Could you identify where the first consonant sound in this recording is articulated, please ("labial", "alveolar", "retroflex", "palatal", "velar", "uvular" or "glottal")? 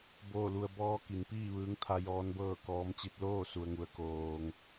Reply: labial